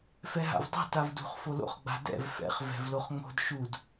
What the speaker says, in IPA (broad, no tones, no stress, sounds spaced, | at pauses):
f ɛ ɦ a̰ v dˤ ɛ̤ t a v d ṳ χ f o l o̰ χ ɡ͡b a̤ d ɛ̰ v f ɛ̰ χ v ɛ̤ v l o χ ŋ͡m o̤ d ʃ u d